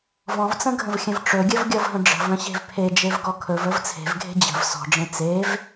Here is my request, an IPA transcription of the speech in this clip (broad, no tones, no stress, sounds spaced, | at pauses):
v ɔ̃ v t͡s ə̃ ɡʱ ə̃ v xʲ ə̃ v ʈ͡ʂ ɵ ɡʲ ə v ɡʲ ɔ v ɦ ə̃ ɖ͡ʐ ə̤ v ə̃ ɕ e̤ v pʰ e d͡ʒ e v ɡ ɔ kʰ ɵ v ə v t͡sʰ e̤ v ɡʱ e̤ d͡ʑ ə̤ v s ɔ̤ ɖ͡ʐ ẽ t͡s e v